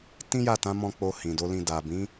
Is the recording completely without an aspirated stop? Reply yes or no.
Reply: yes